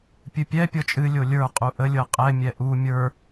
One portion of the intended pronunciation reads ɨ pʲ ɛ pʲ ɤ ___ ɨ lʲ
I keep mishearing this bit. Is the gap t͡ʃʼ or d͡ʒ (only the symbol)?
t͡ʃʼ